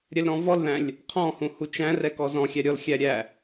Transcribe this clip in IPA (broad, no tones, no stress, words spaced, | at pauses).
ɾʲɛlɾɔ̃vɔlðæ̃lʲ | qʰɔ̃hũ hut͡ʃæ̃rɛ kɔzɔ̃xʲæ ɾʲɔlxʲæ ɾʲæ